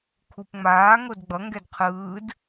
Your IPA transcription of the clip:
kʰ u p ŋ͡m aː ŋ o d ɡ͡b ʌ ŋ ɡ ɛ d qʰ ɯː d

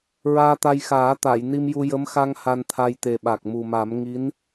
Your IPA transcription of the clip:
ɹ aː˧ t̪ a˧ j x aː˨˩˦ t̪ a˨˩˨ j n i˧ m j u˧ j ə˧˥ m x a˧ ŋ h a˧ n t̪ʰ a˧ j t̪ e˨˩ ɓ a˨˩ k̚ m u˨˩ m a˨˩˦ m ŋ i˧˥ n

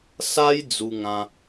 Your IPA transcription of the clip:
s a˦ j d͡z u˧ ŋ ã˧

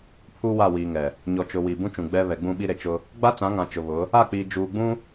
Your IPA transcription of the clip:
pʰ uː˦ w a˦˨ w iː˨ ŋ ɛ˨ | ɲ ɔ˨ t͡ʃ ʊ˨ w iː˨ b ũ˦ t͡ʃ ũ˨ ɡ͡b ɛ˦ β ɛ˨ ɡ͡b ũ˦˨ ɓ i˦ ɾ e˨ t͡ʃ ʊ˦ | ɡ͡b a˦ t͡s ã˨˦ ŋ ã˨ t͡ʃ ʊ˨ β ʊ˨˦ | a˦˨ k͡p iː˨ d͡ʒ uː˨ ɡ͡b ũ˦

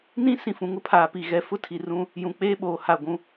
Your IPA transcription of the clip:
n ĩ˦ s ĩ˨ f ũ˨ ŋ ʊ˦ pʰ aː˨ p i˨ ɣ ɛ˨ f ʊ˦ tʰ i˨ r ũ˦ | j ũ˨ k͡p eː˦ ɓ oː˨ h a˦˨ ɡʷ ũ˦

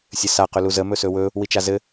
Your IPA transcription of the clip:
sʲ ɘ s a q ɵ l u z ə m ɵ s ɵ w ɵ | w i t͡ʃ a z ɘ

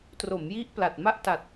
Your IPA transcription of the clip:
t r o˩˦ m j i˦˥ ʔ p l a˨˩ t̚ m a˥˩ ʔ t a˨˩ t̚

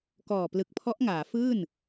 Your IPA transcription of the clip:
k ɔː˨˩ p l ɯ˨˩ k̚ pʰ ɔ˦˥ ʔ ŋ aː˩˦ f ɯː˥˩ n

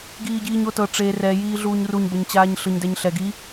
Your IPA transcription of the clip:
ɡ iː ɟ iː ɲ o t ɤ ʈ͡ʂ e r ɛ j iː ɮ uː ɲ r u ɲ b ɤ ɲ t͡ɕ aː ɲ ɬ ɯ ɲ d ɛ ɲ ɬ ɛ ɡ i

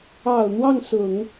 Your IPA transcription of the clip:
ɑ˨˩ ʊ̯ n̪ w ɑ˥˩ ŋ s ʊ˨˩˦ ŋ

